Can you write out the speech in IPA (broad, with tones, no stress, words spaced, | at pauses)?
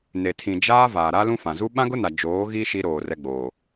ne˨tʰĩ˨ d͡ʒaː˦vaː˨ ɾa˦lũ˦fã˨ zu˦ ɓã˦ɡʊ˦na˨ d͡ʒoː˨˦ɣi˦ ʃi˦ɾoː˨ rɛ˦ɡ͡boː˨